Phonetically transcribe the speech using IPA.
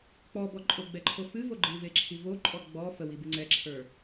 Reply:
k͡p ɔ b ɔ ǃʼ ʊ ɡ͡b ɛ ǃʰ o f ɨ v o ɡ͡ǃ ɨ v e ǁʰ i v o ǃʼ ɔ ɡ͡b ɔ f ə w i b ɨ ŋ͡ǀ ɛ ǁʰ ə˞

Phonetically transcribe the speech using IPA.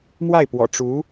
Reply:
m w a˥˩ ɪ̯ p w ɔ̰˨˩ ʈ͡ʂ u˧˥

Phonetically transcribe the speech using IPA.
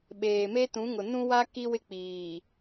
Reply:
ɓ eː˨ m e˦ t ũ˨˦ ŋ ʊ˨ n ũ˦ w a˦ k i˦ w ɪ˦ k͡p iː˨

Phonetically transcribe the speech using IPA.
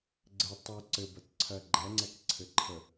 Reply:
ɡ͡ǀ ɘ tˤ u ǀ ɘ b ɐ t ǀʰ ɜ ɡ͡ǃ ɛ ŋ͡ǀ ɛ k ǀʰ ɘ ǃʰ ə

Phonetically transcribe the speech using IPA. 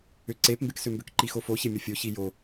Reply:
ʏ ǀ e p m b e k s ʏ m b ʏ k ǃ i x o f o ç e mʲ o fʲ o ç i j o

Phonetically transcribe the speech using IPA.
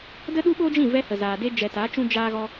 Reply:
d ə˦ ɗ u˦ ɓ oː˦ d͡ʒ ĩ˦˨ v ɛ˧ h ə˨ z aː˨ d e˧ d͡ʒ ɛ˨ t aː˨˦ t͡ʃ ũ˧ d͡ʒ aː˧ ɣ ɔ˧

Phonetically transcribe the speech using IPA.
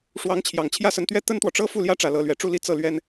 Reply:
ʂ w ɑ˧˥ ŋ t͡ɕʰ j ɑ˨˩ ŋ t͡ɕʰ j ä˥ s ə˧˥ n t̪ ɥ ɛ˥ t̪ ə˥ n t̪ w ɔ˨ ʈ͡ʂ ɤ˥ f u˥˩ l j ä˥ ʈ͡ʂ ä˨˩ l ɤ˧˥ l ɥ ɛ˨˩ ʈ͡ʂ u˥˧ l i˥˧ t͡s ɤ˥˩ l ɥ ɛ˥ n

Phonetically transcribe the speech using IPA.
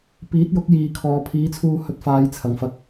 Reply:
p iː˨˥ t̚ j ʊ˨˥ k̚ j iː˨ kʰ ɔː˨ pʰ iː˨˥ t͡sʰ uː˧ h ɵ˧ t̚ f aː˨˧ j t͡sʰ ɐ˨˩ ŋ f ɐ˧ k̚

